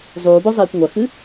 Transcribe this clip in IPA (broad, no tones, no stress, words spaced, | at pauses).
zˤuːbozˤiːkʷ ŋʷɐxɨ